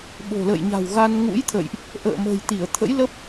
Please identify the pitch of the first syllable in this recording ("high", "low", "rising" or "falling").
low